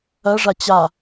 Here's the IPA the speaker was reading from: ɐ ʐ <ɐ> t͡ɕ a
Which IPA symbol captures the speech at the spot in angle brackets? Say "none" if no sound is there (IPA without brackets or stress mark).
a